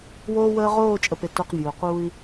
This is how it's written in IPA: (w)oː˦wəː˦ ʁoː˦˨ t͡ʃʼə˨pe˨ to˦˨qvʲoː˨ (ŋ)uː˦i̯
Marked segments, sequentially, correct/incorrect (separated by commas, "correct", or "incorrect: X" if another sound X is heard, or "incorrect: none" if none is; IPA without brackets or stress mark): correct, incorrect: q